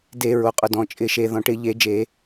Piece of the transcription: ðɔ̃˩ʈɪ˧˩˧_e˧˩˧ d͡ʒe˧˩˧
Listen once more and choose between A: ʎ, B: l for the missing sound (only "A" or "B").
A